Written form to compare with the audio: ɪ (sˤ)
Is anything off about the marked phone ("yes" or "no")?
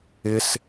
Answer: yes